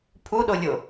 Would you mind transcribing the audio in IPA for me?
pʰuɗolʲo

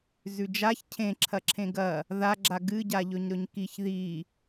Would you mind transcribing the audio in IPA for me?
zʉd͡ʒaç cʰẽǁʰɐǁʰẽ ɡɐ | ðaɡ͡ǁa ɡɨɟaʎɵɲ ɾɵɲkiç ði

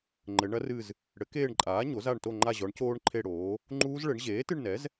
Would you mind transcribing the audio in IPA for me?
ŋ͡ǃɘ˩˧ɳɐ˦˥rɨ˦˨z | ɽɘ˩˥keː˦˨ɳǃʼaː˩˥ ɲo˩˥za˦˨ɳto˦˨ ŋ͡ǃa˦˨ʑɔ˩˥ɳcoː˦˥ɳ ǃʰe˦˨ɽoː˩˥ | ŋ͡ǃuː˦˥zɭɘ˩˥ɳ ʑeː˩˥tɨ˦˨ɳnɛ˩˥z

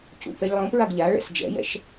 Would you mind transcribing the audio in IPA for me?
cṵpɛʎ lˠõpɹaɡ ʎa ɭɛ̰sd͡ʒɛ̰jɛ̰ʃ

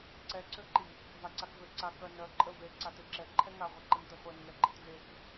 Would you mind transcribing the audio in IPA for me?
ǀɛǀøǃi | vaǀakvøǀa kœ nœ ǃʼə ve ǀateǁɛ ǃʰɛŋa ʁʷeǃəntəχʷɛn ŋɛɡ͡ǃətvek

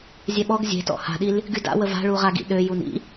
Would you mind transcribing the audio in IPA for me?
zʲɛɓɔɡ zʲe̤tɔ̰ ha̤ɗil | ɡyda̰wə va̤ɭuʁa ɡḭɗø junḭ

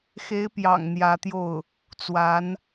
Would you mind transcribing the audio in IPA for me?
xe˧˥ɪ̯pjɑ̰˨˩ŋ n̪jä˧˥t̪jo˥˩ʊ̯ | t͡swa˧˥n

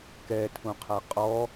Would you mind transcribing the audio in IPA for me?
kɛtʰũqʰa qʼɔ

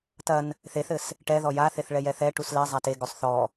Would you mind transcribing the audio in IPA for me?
tɐn | θeθɘs | ʈɛðɔ jaθeθɭɛ jɛθɛʈus lɛ zˤateɡosˤ θɔ

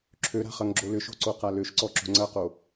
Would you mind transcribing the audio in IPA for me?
ǁʰøɾa̤ χɐŋɡ͡ǁolʏʃo̤ ǀoqaløʃǀɔ ǁo̤ŋ͡ǀɐqo

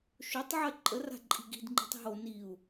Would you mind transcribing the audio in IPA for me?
ʃotˤ ʕɜǃʼəra̤ ǃʼi̤ɡi̤dŋ͡ǃi̤tˤ ɦo niu̯

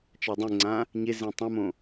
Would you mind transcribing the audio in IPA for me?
t͡ʃadˤẽŋ͡ǀã | ɲe zẽtˤõmõ

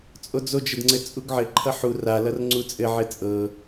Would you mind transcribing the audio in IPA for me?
t͡sʼod͡zod͡ʒɘdŋ͡ǀɘ t͡sʼuɡʕɘ ǃʰʌħu ralʌr ŋ͡ǀut͡sʼɘʕɘ t͡sʼɤ

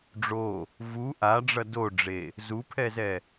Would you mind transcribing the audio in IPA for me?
ɖ͡ʐo | vu ʔaɖ͡ʐʌ doɖ͡ʐe | zupʰɛzɛ

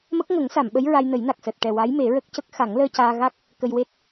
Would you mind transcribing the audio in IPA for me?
mə˦˥k̚ŋə˨˩˦ŋ sa˨˩˨mɓə˧˥j ɹa˧jnə˨˩˦jna˨˩k̚ səː˨˩t̚ ʈɛ˨˩ wa˧˥jme˨˩˦ɹə˦˥k̚cə˦˥k̚ xa˨˩˦ŋləː˧caː˧ɣa˦˥k̚ | kə˧jwe˦˥t̚

